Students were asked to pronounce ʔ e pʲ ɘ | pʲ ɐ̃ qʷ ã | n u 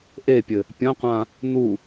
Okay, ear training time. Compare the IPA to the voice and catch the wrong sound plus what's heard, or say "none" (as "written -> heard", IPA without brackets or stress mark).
none